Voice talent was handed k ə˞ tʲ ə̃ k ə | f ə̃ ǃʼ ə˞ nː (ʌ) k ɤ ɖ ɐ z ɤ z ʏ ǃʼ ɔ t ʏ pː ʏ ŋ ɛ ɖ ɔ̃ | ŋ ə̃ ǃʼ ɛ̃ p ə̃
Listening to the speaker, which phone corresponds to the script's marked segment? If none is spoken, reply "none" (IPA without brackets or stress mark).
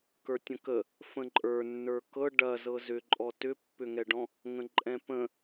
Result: ə˞